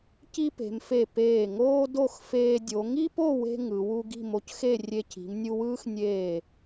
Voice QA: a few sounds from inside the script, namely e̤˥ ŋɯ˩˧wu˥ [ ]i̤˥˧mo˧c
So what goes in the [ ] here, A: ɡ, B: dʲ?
A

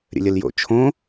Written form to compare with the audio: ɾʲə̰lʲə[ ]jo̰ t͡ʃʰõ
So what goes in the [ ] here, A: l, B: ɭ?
A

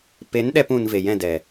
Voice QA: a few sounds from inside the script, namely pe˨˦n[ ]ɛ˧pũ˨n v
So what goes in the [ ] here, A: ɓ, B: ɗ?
B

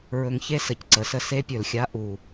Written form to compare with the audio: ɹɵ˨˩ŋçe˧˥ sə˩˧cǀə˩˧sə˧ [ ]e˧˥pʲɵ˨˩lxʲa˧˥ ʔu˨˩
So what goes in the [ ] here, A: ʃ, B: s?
B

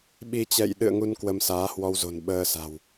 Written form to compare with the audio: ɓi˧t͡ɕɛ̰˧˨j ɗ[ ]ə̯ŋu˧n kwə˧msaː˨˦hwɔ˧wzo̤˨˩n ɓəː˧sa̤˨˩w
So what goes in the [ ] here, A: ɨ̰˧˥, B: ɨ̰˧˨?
B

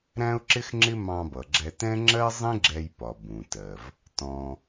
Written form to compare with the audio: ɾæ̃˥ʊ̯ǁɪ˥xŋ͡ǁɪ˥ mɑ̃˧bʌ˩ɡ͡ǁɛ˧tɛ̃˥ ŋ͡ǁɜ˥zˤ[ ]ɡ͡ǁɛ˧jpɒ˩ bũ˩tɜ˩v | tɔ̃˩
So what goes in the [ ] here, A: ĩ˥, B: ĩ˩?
A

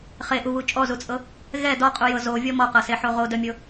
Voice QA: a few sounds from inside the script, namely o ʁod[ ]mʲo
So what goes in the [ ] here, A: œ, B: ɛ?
A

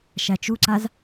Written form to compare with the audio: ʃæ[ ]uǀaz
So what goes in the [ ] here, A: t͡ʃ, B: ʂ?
A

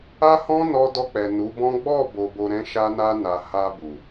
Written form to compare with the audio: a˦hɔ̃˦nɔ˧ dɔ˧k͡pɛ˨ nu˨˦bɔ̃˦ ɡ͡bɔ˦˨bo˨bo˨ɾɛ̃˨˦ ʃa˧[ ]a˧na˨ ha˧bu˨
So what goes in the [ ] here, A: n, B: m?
A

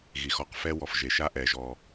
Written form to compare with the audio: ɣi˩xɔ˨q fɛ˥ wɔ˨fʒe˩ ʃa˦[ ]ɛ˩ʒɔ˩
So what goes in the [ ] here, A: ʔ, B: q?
A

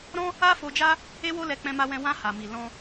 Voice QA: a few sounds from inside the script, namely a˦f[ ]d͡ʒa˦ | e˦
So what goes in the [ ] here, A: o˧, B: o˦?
A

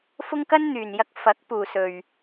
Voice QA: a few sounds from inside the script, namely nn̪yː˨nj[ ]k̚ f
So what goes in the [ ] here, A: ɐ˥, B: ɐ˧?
B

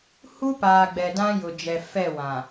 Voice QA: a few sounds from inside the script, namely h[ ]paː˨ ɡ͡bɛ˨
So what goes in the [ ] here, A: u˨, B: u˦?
B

